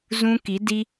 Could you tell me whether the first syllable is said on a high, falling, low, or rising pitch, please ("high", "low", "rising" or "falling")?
high